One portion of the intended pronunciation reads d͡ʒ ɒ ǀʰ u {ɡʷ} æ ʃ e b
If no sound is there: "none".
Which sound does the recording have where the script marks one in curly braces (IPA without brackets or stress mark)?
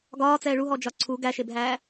ɡ